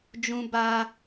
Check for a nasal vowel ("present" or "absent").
present